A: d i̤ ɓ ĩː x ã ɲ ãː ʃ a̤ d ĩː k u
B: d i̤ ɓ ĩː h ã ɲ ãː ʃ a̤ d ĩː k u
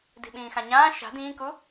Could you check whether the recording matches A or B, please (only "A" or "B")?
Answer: A